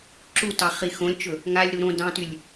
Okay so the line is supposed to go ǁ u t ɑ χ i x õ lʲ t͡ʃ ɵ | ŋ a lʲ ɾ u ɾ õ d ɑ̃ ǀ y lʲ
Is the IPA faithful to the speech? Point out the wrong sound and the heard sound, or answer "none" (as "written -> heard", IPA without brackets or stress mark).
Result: ǀ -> t